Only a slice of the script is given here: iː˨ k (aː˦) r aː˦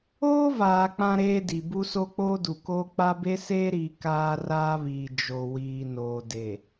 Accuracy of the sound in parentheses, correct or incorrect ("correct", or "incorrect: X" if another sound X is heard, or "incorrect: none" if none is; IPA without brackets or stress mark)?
correct